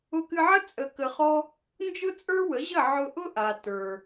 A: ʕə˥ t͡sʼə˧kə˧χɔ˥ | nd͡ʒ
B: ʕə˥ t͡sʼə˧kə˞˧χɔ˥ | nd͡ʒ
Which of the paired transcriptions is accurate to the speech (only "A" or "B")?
A